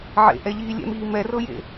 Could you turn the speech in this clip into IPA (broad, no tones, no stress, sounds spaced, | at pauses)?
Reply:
ʕ ḛ ʔ ɛ ʎ iː lʲ ɛ̰ m iː m ɛ r ɤ j ḛ